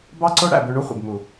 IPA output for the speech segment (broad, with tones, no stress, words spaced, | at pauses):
bɑ˦ǀo˦ ɽæ̰˦˨bø˧ɳu˦ χʷḛ˨bmu˨